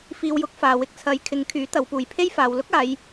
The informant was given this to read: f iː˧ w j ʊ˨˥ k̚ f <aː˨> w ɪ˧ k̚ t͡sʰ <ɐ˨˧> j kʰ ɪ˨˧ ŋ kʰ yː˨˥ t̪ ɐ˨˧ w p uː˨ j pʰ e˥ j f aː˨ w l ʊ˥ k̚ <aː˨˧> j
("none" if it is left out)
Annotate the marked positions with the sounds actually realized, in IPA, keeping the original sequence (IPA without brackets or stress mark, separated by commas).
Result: aː˨, ɐ˨˧, aː˨˧